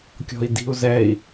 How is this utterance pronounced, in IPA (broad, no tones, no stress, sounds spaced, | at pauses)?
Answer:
kʲ ɔ̤ i̯ d i̤ u̯ z ɛ i̯